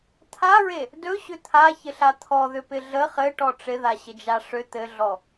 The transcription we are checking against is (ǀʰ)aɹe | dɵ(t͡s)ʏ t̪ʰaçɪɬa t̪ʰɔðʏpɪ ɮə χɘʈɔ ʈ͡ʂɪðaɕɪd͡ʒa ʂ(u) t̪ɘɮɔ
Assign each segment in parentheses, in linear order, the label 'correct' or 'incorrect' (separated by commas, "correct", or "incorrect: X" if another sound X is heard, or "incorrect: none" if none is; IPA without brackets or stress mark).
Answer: incorrect: t̪ʰ, incorrect: ɕ, incorrect: ʏ